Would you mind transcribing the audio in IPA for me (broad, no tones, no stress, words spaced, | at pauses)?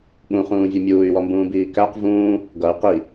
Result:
ɠũχũːvʲu mʲuːy̯wɔmbũːbiː kæq vũː | ɡʌy̯ qi